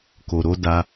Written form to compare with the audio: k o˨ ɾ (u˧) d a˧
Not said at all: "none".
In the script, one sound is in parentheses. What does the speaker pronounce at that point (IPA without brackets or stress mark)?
o˧